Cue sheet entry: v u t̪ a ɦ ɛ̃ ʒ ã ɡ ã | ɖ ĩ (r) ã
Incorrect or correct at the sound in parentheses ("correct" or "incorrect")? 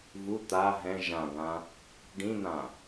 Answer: incorrect